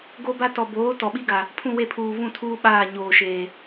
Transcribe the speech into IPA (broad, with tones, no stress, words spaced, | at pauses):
ɡo˦ba˦ tɔ˨boː˨˦ tɔ˨ɓi˦ɡa˨ | pʰũ˦˨we˦˨pʰuː˨ vũ˦˨tʰuː˦ ɓaː˦˨ɲoː˨ʃeː˨